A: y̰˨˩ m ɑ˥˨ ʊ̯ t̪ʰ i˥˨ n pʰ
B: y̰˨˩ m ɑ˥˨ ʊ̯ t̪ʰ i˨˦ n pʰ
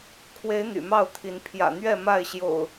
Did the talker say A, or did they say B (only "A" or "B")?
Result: B